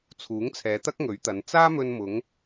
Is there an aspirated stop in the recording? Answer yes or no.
yes